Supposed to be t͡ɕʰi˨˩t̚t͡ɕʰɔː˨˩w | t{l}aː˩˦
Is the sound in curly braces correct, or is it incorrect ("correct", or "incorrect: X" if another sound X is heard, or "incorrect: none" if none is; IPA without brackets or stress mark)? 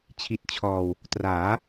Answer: incorrect: r